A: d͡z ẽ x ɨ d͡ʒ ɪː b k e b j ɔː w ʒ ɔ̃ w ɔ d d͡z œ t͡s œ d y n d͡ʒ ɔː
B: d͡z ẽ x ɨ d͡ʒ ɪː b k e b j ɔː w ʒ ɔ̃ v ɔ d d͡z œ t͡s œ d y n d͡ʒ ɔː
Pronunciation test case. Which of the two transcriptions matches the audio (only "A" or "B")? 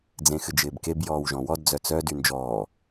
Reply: A